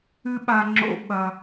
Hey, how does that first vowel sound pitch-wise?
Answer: high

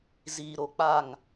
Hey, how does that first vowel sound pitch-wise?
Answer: low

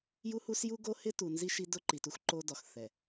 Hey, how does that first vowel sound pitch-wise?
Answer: high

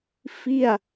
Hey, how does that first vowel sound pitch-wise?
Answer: falling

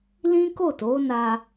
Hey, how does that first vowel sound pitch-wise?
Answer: high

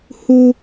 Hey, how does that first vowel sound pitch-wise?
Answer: high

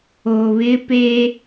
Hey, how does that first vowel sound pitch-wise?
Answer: low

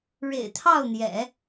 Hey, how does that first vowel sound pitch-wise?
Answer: low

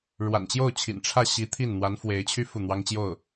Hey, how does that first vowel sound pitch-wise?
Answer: low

